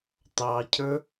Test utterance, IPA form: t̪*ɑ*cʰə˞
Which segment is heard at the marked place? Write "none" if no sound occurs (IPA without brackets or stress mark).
ɑ